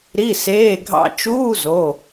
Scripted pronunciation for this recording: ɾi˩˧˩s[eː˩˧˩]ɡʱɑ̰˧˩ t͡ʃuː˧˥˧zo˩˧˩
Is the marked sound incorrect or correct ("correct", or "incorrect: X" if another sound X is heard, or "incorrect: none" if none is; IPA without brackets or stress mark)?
correct